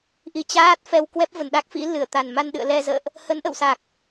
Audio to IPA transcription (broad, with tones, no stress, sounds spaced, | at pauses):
ʔ i˨˦ t͡ɕ aː˦˥ t̚ f ɛ˧ w k w ɛ˦˥ p̚ v ə˧˩ n ɗ a˦˥ k̚ f ḭ˧˥ l ɨ˧˩ ə̯ t̪ a˨˩ n m a˧ n ɗ ɨ̰˧˨ ə̯ l ɛ˧ z ə̰ː˧˨ ʔ | h ə˨˦ n ʔ ə̰˧˨ w s a˨˩ k̚